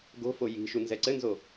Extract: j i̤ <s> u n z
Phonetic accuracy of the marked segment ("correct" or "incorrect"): incorrect